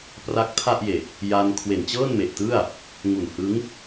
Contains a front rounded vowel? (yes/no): no